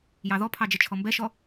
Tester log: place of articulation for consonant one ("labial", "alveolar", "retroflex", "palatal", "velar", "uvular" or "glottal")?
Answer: palatal